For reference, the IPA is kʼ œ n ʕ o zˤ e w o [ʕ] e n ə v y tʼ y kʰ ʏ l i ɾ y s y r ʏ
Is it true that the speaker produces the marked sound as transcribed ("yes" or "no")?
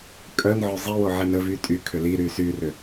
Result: yes